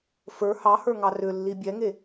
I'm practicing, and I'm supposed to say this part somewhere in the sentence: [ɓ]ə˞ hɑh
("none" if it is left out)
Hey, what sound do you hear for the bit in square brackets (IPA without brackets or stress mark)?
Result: f